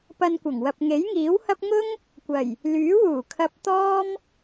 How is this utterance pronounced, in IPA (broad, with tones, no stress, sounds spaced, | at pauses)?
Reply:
p ɐ˧ n kʷ ɐ˨˩ ŋ w ɐ˨ p̚ ŋ e˨˥ j ŋ iː˨˥ w h ɐ˥ p̚ ŋ ʊ˥ ŋ | kʷ ɐ˨˩ j | l yː˨˥ w uː˨˩ kʰ ɐ˧ p̚ t̪ ɔː˥ m